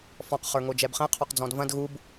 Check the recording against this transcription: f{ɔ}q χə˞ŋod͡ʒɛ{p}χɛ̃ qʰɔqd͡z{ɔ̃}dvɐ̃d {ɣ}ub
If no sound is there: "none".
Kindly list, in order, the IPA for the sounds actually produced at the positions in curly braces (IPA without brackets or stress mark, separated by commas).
ɔ̃, b, ɔ̃, ɣ